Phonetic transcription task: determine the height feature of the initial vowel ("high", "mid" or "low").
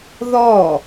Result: mid